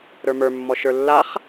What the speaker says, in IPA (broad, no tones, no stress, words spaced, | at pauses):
ɾə˞mə˞mːɔ ʃə˞lːaχ